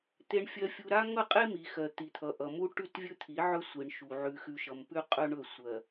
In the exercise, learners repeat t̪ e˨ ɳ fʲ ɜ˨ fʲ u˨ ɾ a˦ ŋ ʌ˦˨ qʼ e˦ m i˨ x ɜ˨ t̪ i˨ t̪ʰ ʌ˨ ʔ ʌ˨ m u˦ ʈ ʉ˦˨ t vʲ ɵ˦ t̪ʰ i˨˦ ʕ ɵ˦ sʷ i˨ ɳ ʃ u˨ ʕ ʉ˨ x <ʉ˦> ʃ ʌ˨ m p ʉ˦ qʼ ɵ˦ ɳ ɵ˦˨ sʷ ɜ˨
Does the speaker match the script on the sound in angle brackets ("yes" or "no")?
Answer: no